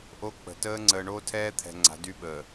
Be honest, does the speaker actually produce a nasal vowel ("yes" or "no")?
no